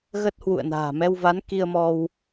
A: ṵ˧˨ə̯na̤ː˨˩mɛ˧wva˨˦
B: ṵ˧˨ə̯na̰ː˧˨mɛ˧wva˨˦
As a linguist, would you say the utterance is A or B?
A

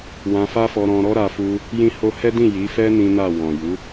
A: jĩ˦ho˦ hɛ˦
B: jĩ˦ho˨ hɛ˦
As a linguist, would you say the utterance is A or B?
A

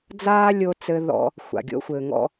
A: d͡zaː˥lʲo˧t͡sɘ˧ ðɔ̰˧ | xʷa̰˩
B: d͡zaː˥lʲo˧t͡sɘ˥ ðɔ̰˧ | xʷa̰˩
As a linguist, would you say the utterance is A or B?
A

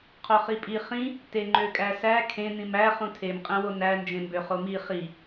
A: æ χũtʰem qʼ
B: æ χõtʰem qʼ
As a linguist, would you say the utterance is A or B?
A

